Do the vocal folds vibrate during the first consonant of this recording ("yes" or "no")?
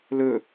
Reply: yes